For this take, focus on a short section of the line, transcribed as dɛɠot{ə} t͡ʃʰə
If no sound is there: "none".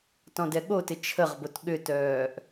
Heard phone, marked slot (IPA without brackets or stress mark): ɪ